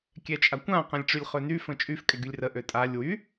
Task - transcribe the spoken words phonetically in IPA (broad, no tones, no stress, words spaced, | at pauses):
kʲɛt͡ʃʼakʷã qɛ̃lʲʈ͡ʂylʲχøny fə̃t͡ʃʼyf kʼɛɡylʲrə ʔøtʼalʲ wy